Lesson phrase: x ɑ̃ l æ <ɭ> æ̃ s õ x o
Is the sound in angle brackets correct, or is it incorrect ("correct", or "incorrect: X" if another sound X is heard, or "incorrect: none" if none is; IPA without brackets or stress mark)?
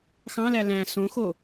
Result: incorrect: l